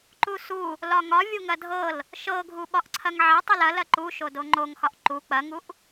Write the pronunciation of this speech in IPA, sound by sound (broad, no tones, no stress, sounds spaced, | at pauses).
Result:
ǃ u s u | l ɒ ŋ ɒ vʲ u ŋ ɐ dʱ ɤ l | ʃ ɤ ɡʱ u ɓ ɒ ʔ ǀʰ ɐ ŋ ʕ ɐ tˤ ɐ l ɐ l ɐ ǃ u ʃ o d o ŋ͡ǃ o ŋ x ɒ ʔ ǃ u k͡p ɐ ŋ u ʔ